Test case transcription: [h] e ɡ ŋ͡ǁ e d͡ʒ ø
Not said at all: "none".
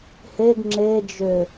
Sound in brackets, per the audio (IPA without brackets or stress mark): h